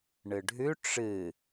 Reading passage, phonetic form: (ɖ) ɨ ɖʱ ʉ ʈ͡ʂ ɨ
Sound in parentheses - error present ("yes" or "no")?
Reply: yes